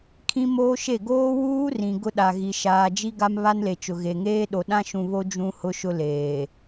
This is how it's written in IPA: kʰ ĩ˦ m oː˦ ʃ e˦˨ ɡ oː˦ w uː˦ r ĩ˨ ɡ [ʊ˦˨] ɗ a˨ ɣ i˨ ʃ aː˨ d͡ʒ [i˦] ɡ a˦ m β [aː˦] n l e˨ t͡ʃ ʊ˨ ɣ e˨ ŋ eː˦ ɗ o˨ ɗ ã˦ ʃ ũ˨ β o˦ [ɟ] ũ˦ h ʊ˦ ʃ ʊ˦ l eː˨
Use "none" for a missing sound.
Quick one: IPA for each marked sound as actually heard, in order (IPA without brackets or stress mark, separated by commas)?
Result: ʊ˦, i˦, a˦, d͡ʒ